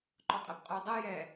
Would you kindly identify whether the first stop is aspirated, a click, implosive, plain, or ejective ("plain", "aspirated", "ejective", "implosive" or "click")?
click